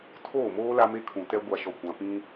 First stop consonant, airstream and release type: aspirated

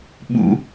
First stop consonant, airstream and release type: implosive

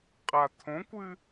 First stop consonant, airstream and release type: ejective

